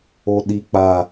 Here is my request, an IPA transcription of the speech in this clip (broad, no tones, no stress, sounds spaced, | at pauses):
o ɗ i k͡p a